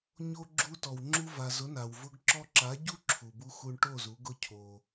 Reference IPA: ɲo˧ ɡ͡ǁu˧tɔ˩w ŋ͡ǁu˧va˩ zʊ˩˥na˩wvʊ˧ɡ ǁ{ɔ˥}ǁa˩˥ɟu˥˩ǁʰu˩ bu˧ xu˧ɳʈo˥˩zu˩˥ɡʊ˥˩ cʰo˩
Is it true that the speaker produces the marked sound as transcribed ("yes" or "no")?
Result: no